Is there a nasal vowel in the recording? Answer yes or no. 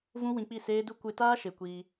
yes